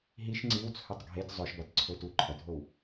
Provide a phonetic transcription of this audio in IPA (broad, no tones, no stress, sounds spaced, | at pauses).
ɦ i ʃ ŋ͡ǀ i w t͡sʰ ɵ tˤ ɡʱ e t zˤ ɵ ʃ b a t ǀʰ ɵ t u ǃʰ ɐ dʱ o w